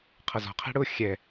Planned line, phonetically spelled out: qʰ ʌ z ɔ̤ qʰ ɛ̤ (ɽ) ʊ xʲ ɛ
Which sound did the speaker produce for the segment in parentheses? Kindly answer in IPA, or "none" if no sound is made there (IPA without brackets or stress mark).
ɽ